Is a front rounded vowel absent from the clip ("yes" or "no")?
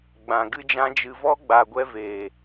yes